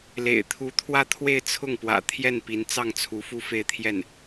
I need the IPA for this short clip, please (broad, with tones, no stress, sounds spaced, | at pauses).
l ḛ˨˩ ɪ̯ t̪ʰ u˧˥ t̪ʰ w ä˥˧ t̪ʰ w e˥˧ ɪ̯ t͡sʰ ʊ˥˩ ŋ p w ä̰˨˩ t̪ʰ j ɛ˥˩ n p i˧˥ n t͡s ɑ˥˩ ŋ t͡sʰ u˧˥ f u˥˧ f e˥˧ ɪ̯ t̪ʰ j ɛ˥˩ n